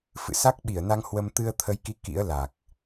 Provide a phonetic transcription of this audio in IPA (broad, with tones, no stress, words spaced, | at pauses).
fɨ̰˧˨sa˦˥k̚ɓi˧˩ə̯na˧ŋ hwə˧m t̪ɨ˧ə̯t̪ʰə˨˦jki˨˦ kḭ˧˥ə̯la˨˩k̚